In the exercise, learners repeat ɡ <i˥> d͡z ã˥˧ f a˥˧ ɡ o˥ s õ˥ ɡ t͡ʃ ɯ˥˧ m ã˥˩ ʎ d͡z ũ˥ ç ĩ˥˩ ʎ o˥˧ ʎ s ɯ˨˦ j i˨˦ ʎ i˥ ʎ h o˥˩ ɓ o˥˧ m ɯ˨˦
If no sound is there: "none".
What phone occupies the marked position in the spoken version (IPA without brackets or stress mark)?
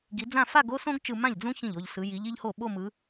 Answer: i˨˦